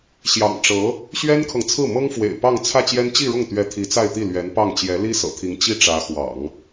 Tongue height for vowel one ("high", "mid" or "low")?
low